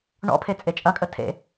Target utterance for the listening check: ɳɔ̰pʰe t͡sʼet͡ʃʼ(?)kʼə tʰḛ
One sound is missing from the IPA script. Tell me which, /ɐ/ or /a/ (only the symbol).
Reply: ɐ